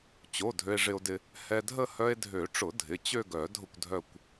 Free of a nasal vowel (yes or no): yes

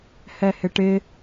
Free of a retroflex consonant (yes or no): no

